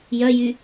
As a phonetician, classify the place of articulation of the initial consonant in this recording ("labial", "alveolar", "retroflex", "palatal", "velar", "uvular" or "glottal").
palatal